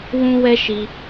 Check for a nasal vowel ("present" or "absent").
present